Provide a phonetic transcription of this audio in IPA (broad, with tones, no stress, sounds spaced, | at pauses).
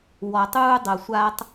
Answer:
w ɔ˨ tˤ uː˧ dˤ ɤ˨ sʷ a˧ tˤ